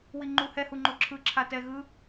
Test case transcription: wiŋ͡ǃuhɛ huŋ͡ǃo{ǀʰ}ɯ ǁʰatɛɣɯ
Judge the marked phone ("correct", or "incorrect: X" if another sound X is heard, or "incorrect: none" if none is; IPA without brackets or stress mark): incorrect: ǁʰ